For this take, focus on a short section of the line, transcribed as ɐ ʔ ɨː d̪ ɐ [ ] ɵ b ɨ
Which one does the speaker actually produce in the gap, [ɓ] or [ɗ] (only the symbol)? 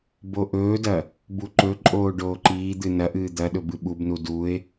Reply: ɗ